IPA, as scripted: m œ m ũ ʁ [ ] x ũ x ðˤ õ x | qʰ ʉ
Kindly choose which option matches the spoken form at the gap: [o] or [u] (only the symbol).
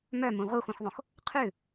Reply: u